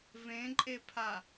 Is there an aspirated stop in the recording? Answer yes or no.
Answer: yes